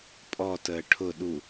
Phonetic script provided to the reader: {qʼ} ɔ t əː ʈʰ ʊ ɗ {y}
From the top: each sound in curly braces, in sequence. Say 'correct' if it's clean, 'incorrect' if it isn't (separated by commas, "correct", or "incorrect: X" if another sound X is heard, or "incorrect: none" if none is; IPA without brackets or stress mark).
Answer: incorrect: pʼ, incorrect: u